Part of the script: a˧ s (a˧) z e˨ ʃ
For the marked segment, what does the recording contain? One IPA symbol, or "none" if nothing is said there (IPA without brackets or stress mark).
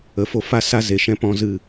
a˧